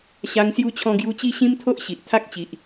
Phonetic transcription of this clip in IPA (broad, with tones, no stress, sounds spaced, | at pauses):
ɕ a˧ ŋ s j u˧ t͡ɕʰ ɔ̃˧ ɡ j u˧ t͡ɕ i˦ ɕ ĩ˦ m t̪ʰ o˦ ʔ ɕ i˨ ʔ t̪ʰ a˦ k̚ t͡ɕ i˨ ʔ